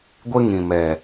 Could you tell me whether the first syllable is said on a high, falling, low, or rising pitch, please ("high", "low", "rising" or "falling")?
high